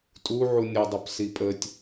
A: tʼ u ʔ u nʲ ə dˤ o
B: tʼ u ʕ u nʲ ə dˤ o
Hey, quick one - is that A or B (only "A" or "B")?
B